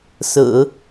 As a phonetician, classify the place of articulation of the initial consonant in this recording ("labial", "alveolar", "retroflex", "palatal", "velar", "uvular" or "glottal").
alveolar